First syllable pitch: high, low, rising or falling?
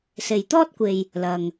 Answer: low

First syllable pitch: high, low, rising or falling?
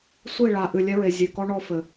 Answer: falling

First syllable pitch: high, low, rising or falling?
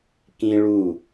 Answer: high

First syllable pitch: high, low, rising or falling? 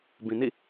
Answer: low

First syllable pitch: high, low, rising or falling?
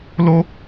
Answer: high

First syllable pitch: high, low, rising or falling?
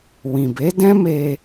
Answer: low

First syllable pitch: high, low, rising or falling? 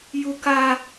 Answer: high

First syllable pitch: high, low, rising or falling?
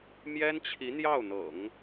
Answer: high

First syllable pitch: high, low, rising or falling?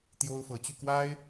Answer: high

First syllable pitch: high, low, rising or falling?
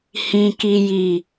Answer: low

